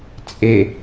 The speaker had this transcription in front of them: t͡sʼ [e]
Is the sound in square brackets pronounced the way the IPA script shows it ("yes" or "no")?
yes